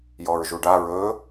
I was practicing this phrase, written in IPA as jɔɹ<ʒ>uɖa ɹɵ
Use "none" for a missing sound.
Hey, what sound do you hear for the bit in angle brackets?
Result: ʒ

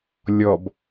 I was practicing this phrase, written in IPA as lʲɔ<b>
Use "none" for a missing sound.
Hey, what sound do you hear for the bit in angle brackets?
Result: b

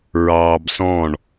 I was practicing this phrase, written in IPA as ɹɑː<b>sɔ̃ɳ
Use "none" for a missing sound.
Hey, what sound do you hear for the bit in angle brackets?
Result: b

